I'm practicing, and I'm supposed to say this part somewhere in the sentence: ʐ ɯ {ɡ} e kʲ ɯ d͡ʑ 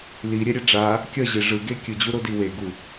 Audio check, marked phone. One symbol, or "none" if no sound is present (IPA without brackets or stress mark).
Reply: ɡ